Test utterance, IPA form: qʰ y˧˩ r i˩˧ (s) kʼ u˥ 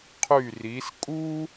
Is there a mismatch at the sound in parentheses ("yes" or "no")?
no